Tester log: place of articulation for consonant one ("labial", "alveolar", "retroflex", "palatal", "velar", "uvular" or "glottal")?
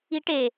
retroflex